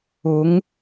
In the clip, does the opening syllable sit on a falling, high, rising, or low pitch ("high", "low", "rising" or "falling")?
rising